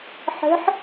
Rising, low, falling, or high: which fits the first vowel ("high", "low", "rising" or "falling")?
rising